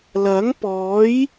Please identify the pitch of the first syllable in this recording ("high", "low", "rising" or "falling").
rising